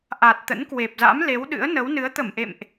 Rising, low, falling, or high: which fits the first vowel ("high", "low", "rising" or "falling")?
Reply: low